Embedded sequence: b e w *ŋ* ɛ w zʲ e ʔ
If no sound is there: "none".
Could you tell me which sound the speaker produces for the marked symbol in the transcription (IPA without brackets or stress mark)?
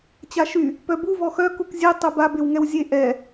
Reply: ŋ